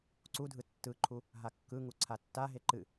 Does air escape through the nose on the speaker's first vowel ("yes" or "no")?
no